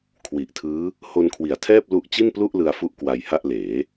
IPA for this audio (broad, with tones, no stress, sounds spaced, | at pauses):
kʰ w i˨˩ ʔ tʰ ɯː˦˥ | h o˧ n kʰ w i˩˦ a̯ tʰ ɛː˥˩ p̚ l u˦˥ ʔ t͡ɕ i˥˩ n p l u˥˩ ʔ l ɯ˧ a̯ f u˥˩ ʔ k w a˧ j h a˥˩ ʔ l eː˩˦